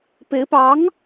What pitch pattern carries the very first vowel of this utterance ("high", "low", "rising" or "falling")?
rising